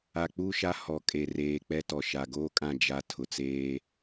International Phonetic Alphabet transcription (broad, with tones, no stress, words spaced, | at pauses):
a˨k͡pu˦˨ʃa˦ hɔ˨kʼe˨reː˨ k͡pɛ˦tɔ˨ ʃa˨ɡoː˦kʼã˦˨ d͡ʒa˦ tʰʊ˨t͡seː˦